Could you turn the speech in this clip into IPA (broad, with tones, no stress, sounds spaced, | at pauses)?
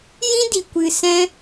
j ĩ˦ d i˨ kʷ ɨ˨ s ɛ̃˧